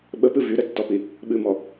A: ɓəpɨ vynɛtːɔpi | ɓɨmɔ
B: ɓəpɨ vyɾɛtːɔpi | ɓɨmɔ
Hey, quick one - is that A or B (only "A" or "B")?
B